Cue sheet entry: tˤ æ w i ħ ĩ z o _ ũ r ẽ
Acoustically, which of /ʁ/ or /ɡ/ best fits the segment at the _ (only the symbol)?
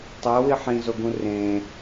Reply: ɡ